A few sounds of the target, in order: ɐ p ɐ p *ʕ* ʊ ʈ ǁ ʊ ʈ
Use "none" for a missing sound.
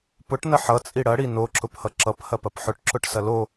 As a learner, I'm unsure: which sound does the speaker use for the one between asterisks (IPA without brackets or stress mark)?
ħ